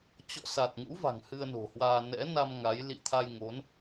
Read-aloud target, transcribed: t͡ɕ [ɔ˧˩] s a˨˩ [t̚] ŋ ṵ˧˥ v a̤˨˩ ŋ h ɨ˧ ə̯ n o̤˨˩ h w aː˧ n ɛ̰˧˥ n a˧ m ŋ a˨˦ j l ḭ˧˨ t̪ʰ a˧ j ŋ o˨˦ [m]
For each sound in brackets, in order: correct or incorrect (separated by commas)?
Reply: incorrect, correct, incorrect